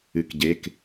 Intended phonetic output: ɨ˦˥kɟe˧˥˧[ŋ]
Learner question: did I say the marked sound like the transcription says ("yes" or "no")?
no